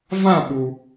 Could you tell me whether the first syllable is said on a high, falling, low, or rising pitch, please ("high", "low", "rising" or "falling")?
falling